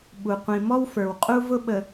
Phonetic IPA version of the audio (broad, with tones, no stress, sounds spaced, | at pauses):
ɓ u˨ qʷ ĩ˨ m ɔ˦ w f ə˞˨ w qʼ u˦ v ʊ˦ ɓ ə˨